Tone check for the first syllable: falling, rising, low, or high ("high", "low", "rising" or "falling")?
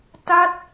falling